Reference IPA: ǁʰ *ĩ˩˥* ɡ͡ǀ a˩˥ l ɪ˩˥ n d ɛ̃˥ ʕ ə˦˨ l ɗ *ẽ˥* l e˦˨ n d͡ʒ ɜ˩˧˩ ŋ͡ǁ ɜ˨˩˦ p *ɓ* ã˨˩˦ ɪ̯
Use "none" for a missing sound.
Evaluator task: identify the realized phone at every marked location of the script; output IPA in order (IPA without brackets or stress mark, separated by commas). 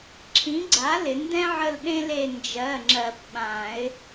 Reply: ĩ˩˥, ẽ˥, ɓ